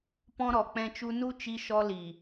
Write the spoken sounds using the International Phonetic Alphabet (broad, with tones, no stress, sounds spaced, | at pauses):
p ɔ̃˧ ɾ ɔ˨ k͡p ɛ̃˧ t͡ʃ u˧ n u˧ t͡ʃ i˦ ʃ ɔ˦ l i˨